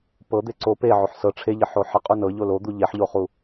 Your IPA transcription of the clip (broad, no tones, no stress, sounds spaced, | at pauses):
p ɤ d̪ e ǀ o p e ʕ o ħ s ɤ ʈ͡ʂʰ e ʎ ɪ ħ o ħ ɪ qʼ u n ɤ ʎ o l o d̪ u ʎ e ħ ʎ o χ u